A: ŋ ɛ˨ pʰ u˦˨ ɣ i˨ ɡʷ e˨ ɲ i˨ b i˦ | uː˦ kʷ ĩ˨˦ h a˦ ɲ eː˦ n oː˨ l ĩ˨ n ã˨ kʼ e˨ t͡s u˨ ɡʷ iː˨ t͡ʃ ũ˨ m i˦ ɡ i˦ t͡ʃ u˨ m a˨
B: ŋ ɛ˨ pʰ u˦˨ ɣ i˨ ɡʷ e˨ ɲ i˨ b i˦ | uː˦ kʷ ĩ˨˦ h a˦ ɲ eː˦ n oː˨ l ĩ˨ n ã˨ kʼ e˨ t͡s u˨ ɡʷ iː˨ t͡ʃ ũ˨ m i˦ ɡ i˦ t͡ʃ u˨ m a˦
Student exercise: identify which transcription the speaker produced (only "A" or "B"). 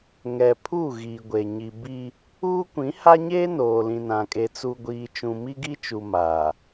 A